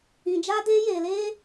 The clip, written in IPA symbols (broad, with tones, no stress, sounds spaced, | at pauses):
ĩ˧ d͡ʒ aː˦ d eː˦ j eː˧ l eː˦